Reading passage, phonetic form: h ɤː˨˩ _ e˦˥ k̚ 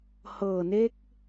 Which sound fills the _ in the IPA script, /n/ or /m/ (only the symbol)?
n